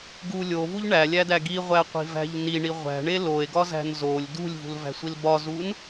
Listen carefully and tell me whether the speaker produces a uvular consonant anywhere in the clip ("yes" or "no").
yes